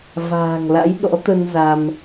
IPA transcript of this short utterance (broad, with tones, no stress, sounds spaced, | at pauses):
v a̤ː˨˩ ŋ l a̰˧˥ j ɗ ɔ̰˧˥ t̪ ə˧ n z a˧ m